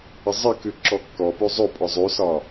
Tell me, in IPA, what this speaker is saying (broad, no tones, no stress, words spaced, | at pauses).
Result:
əzˤəkʉ ǁɔkːɔpʉ zˤopʼɔ zˤʉsɒ